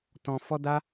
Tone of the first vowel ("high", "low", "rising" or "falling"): high